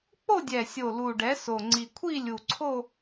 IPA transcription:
k͡po˥˧dʲɛ˨˩sʲo˨˩ lu˨˩ɖɛ˩˥so˨˩ ŋ͡ǀi˨˩kʷʰi˥˧lʲu˨˩ǀʰo˥˧

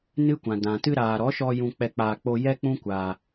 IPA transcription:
nɨ˦kʷã˨ dã˨ tɨ˧ɾaː˨ɾɔ˨˦ʃɔ˧ jũ˧k͡pɛ˧k͡paː˧ k͡po˧ jɛ˦k͡pũ˦kʷaː˧

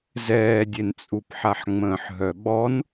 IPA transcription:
zɛːdʲent͡sʼup ħaħŋ͡mə̃ːħɦœɓɔn

